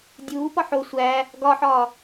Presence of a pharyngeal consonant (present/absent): present